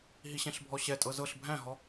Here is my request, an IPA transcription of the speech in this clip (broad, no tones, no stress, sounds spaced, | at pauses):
ɦ i ɕ ɛ̃ ɬ bʱ ɔ ɕ ɛ tʼ ɤ z ɤ ɬ bʱ æ̃ ɦ ɔ